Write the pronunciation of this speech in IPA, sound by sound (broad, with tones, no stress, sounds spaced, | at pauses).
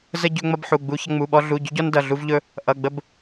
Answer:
z ə˥ ɟ ɵ˥ ŋ͡m ʌ˥ b ħ u˧˥˧ ɡ͡b u˥ ç ʌ˥ ŋ͡m u˧˥˧ ɓ ɔ˥ ɮ u˧˥˧ ɟ ɵ˥ ɟ ɔ˥ n d ʌ˧˥˧ ɮ u˥ v ʎ ɵ˥ | ʔ ʌ˧˥˧ ɡ͡b ə˥ b